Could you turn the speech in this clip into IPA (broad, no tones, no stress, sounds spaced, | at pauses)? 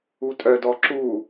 u tʼ œ d ɔ ǁ u